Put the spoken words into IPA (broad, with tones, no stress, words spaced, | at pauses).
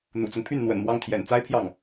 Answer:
n̪ṵ˨˩t͡sʊ˦ŋpʰy˥˩n n̪wə̰˨˩nmwɑ˥˩ŋ t̪ʰjɛ̰˨˩nt͡sa˥ɪ̯pʰjɑ˥˩ŋ